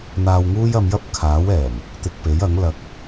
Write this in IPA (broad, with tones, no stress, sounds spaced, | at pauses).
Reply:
n̪ aː˧ w ŋ uː˥ j ɐ˧ m j ɐ˥ p̚ kʰ aː˨˥ w ɛː˨˩ m | t̪ ɪ˧ k̚ p e˨˥ j ɐ˨˥ ŋ l ɐ˧ k̚